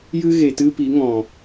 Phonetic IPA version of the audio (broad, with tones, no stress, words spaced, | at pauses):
jɨ˦ ɣe˨tɨ˦ pi˨˦ŋɔ̃˨